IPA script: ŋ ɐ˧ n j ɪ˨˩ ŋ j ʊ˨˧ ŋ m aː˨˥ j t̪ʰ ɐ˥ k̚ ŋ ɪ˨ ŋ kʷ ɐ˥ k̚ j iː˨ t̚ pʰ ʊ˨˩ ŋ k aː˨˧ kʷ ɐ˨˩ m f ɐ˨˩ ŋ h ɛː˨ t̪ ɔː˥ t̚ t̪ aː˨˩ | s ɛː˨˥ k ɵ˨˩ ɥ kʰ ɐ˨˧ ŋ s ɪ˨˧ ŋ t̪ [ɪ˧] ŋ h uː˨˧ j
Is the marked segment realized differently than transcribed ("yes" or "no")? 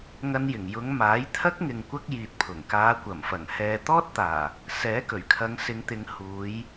yes